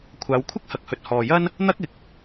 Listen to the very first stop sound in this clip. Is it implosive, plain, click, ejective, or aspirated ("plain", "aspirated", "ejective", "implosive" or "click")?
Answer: aspirated